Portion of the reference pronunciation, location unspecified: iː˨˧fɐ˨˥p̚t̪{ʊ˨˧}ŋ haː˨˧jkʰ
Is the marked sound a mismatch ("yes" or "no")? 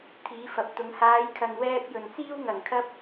no